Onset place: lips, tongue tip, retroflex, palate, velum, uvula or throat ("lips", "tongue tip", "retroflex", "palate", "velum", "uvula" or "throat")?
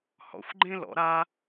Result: throat